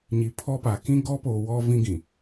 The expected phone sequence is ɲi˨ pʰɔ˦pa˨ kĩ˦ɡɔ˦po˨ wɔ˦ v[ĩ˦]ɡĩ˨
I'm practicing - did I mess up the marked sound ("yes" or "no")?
no